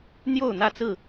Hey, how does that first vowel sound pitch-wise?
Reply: falling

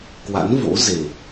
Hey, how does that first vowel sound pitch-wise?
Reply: rising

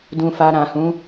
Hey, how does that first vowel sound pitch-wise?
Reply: low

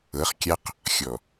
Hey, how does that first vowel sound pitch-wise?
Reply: rising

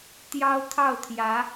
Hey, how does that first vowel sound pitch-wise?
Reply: high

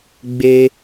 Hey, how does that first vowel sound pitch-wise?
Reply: high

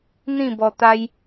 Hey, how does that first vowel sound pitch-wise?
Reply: falling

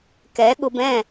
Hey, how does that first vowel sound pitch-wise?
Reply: rising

